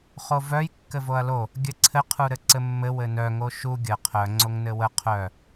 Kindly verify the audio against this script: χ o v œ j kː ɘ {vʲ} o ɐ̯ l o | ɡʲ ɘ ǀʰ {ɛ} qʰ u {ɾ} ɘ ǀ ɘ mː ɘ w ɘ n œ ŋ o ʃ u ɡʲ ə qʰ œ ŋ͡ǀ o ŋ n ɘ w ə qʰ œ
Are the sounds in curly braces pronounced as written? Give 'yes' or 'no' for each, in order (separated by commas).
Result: no, no, yes